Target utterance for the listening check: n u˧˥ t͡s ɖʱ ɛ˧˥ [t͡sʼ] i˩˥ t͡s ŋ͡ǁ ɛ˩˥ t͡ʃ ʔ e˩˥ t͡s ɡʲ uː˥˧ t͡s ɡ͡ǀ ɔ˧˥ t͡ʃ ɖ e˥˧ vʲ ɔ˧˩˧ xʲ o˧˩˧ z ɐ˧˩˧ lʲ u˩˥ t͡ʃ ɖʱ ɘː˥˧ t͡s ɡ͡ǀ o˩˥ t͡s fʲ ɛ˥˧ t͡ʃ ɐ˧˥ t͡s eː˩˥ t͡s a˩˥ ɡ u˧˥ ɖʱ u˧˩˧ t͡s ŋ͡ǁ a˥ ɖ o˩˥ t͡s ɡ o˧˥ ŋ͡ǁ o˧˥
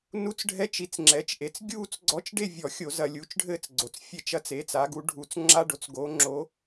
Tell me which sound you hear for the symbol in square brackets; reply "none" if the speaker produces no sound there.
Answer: t͡ʃ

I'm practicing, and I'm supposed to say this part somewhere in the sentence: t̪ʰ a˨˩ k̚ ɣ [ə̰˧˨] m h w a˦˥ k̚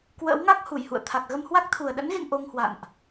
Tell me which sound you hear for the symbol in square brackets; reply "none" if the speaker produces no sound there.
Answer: ə˧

